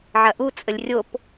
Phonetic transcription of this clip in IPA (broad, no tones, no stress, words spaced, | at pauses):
ʕɐʔu t͡sʼəlʲrʲop